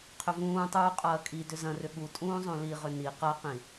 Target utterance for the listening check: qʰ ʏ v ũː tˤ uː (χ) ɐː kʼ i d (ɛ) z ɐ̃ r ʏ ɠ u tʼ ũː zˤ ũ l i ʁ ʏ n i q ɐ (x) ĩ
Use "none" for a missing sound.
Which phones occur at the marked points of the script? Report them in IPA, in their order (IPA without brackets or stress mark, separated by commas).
qʼ, ʏ, q